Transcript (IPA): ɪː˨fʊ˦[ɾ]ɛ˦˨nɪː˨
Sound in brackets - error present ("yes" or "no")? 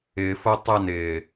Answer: yes